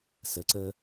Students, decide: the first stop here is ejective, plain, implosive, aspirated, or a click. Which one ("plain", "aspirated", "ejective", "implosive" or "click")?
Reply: click